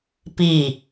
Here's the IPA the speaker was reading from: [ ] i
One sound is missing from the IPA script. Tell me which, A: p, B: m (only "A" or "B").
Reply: A